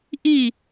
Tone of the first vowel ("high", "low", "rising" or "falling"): falling